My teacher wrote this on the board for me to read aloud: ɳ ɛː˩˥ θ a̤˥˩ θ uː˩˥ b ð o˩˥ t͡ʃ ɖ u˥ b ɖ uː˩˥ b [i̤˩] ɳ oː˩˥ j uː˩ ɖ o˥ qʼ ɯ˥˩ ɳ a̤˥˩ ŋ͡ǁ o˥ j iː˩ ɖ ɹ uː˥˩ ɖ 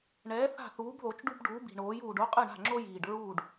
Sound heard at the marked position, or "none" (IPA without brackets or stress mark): i̤˩